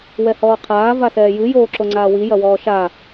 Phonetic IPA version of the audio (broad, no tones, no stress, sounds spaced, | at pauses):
w ɛ h ɔː qʰ aː v a s ɛː j ɨ j oː ǁ o ŋ͡ǀ aː w i j ɐ w ɔː ʃ a